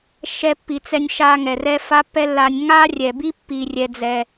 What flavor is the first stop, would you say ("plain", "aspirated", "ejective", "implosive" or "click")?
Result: plain